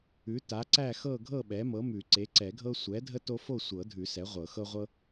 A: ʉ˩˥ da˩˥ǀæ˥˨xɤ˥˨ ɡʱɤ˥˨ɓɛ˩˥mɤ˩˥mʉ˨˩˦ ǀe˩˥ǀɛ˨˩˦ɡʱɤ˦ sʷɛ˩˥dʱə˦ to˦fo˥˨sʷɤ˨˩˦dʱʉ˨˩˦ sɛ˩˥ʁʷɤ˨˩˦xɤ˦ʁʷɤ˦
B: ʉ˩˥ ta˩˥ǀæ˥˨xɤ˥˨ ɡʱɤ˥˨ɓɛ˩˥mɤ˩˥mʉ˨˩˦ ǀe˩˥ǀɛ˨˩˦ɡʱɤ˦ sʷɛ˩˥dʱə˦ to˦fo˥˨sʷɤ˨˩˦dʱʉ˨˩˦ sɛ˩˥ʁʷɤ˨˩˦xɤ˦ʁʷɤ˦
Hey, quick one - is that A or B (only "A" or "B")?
B